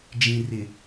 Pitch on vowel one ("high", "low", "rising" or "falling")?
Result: low